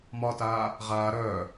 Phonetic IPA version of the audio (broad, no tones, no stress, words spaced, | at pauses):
mɒtaː | ʁaː ɾœː